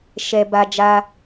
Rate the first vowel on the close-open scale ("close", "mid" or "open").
mid